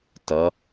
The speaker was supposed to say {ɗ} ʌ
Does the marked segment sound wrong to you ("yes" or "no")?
yes